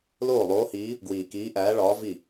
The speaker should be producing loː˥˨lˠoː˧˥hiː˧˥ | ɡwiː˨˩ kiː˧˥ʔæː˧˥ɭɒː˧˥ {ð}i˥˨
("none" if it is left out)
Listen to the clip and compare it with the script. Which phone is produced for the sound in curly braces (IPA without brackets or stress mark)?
v